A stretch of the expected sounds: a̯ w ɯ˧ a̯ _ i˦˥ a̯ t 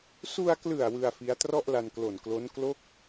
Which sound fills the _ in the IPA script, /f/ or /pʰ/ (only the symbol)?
f